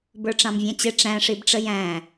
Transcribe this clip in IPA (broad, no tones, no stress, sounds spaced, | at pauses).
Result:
b ə˞ ʈ͡ʂ ɑ̃ m vʲ æ̃ t͡ɕ ɪ ʈ͡ʂ æ̃ ʂ i b ʈ͡ʂ ə j æ̃